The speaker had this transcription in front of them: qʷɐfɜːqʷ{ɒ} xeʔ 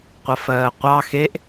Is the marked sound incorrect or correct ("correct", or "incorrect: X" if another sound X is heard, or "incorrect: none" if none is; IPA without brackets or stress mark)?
incorrect: ɑ